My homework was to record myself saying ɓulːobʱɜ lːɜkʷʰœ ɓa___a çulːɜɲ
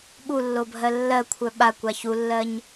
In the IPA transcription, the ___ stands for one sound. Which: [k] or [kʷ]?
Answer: kʷ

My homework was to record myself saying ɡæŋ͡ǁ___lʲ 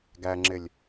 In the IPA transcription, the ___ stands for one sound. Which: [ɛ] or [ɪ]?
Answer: ɪ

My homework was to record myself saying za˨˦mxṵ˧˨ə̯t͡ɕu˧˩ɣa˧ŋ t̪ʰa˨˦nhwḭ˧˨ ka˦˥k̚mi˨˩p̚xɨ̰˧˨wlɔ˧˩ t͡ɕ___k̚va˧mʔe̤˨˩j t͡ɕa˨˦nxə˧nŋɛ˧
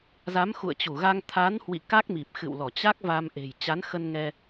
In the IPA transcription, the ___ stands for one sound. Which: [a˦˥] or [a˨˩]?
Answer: a˦˥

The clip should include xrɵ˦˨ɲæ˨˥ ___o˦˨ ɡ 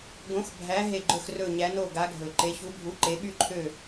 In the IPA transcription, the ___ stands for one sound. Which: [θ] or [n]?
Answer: n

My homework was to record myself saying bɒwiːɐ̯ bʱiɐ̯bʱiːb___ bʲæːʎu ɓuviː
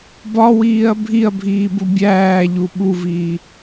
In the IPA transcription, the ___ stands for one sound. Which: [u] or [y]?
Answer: u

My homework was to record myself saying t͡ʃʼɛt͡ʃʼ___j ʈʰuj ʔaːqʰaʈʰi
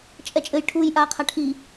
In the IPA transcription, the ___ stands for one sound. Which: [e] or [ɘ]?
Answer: ɘ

